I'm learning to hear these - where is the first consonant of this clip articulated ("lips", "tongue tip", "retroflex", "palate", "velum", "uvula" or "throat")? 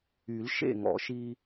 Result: tongue tip